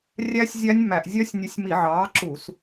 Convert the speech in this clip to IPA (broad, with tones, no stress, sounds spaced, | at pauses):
rʲ æ˦˥ sʲ zʲ æ˦˥ nʲ m æ˧˩˧ ʔ zʲ œ˦˥ sʲ nʲ ʉ˨˥ sʲ m i˧˩˧ ʕ ɑː˨˥ ǁ u˧˩˧ s